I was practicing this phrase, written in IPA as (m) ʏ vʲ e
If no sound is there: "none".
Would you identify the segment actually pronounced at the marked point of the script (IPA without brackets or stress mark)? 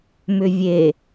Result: m